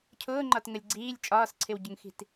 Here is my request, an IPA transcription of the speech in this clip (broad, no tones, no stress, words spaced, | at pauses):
cʰʊːŋ͡ǃɒtŋəlʲ ɡ͡ǀiːlʲ t͡ʃʼɒːsǀʰɪwɟʊŋxi̤t